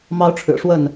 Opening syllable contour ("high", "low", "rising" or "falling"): high